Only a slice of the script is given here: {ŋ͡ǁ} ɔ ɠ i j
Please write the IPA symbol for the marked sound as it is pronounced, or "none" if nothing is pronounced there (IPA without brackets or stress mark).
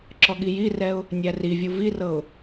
ǁ